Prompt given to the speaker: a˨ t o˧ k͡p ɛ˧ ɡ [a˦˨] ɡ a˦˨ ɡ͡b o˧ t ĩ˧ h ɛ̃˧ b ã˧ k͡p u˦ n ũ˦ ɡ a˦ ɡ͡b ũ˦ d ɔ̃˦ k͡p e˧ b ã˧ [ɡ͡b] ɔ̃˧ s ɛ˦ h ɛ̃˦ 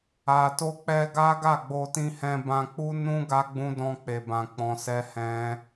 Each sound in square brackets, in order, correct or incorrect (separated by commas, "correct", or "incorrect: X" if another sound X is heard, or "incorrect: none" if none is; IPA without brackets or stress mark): incorrect: a˦, incorrect: k͡p